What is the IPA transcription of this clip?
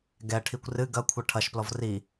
ɡ ɛ ʈʰ i kʷ r ɨ ɡ ɐ kʷʰ ɐ ʈʰ ɐ ʃ p l ɔ v r i

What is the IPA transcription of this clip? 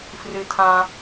f r ɨ˧ tʰ ã˧

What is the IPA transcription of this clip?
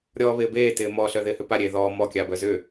ɾʲ ɔː β ɪː b eː t ɪː m ɔ ɬ œ ð ɪː h ʏ p a ɾʲ eː ð ɔː m ɔ kʲ a b œ z ʏ

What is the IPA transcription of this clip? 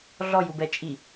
ɮ ɔ j u b ɛ t͡ʃʼ i

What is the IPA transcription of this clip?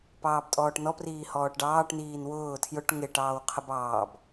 p ɑː b tʼ ɔː ʈ n ɔ p r iː h ɔː ʈ ɖ ɑː ʈ n iː n w ʊː tʰ j ʊ ʈ ŋ ɪ ʈ ɑː w qʰ ə b ɑː b

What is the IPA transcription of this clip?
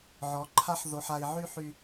ʕ ɔ˨˦ ǃʰ a˦ ħ ð o˨ ħ a˨ i̯ ʕ y˧ ħ y˧

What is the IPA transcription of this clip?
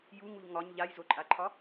j u ŋ u ʎ ŋ ɒ ɲ ʎ a j z o ǃʼ a ǃʰ ɒ

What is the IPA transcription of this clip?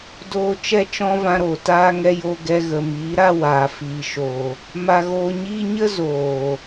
d oː˦ t͡ʃ ɛ˦ t͡ʃ ɔ̃˦ v ã˧ ɾ o˨ t aː˦ ŋ ɛ˧ j o˧ ɡ ɛ˧ ɣ ə˨ m iː˨˦ ɾ a˧ w aː˨ f iː˨ ʃ o˨ | m a˧ ɣ oː˧ ɲ iː˦ ɲ ə˦ z oː˨

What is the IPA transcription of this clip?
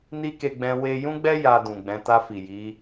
n i˦ k e˧ ɡ͡b ɛ̃˧ w e˧ j ũ˦ ɡ͡b ɛ˦ j a˧ d ũ˨ ɡ͡b ɛ̃˨˦ t a˧ f i˨ j i˨˦

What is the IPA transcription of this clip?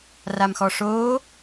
r a m x ɔ ʂ oː

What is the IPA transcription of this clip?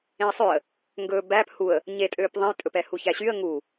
ẽ ə̯ sˤ ø ə̯ | ŋ ɡ ɵ b æ p h u ə̯ | ɲ e tʼ øː p ðˤ ẽ j tʼ ɵ p ɛ h u ç æ ɕ y ə̯ ŋ u

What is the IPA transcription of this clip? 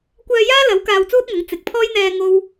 kʷ œː˧ j aː˥ l ɐ˨˥ w k aː˧ w t͡s uː˥ t̚ ŋ ɐ˨˥ ŋ t͡s ɪ˨˥ k̚ pʰ ɔː˥ j n̪ ɛː˧ ŋ o˥ w

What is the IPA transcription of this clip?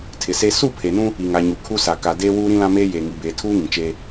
tʰ ɪ˨ s e˦ s u˦˨ pʰ e˨ n ũ˦ | i˨ ŋ a˨ ɲ u˨ kʰ u˦ s a˨ k a˨ d eː˦ w uː˦ ɾ ĩ˦ l ã˦ m eː˦ j e˨ ŋ i˨ b eː˨ tʰ uː˦ ŋ ĩ˨ t͡ʃ eː˦

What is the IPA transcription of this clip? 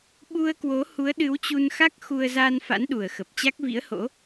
ɓ u˧ ə̯ k w o˨˦ h u˨˦ ə̯ ɗ ɨ˨˦ w t͡ɕ u˧ n x a˦˥ k̚ x u˧ ə̯ z a˧ n f a̰˧˥ n ɗ u˨˩ ə̯ x ə˨˩ p̚ t͡ɕ a˦˥ k̚ v ḭ˧˥ ə̯ h o̰˧˥

